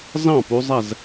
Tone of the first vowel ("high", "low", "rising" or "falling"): falling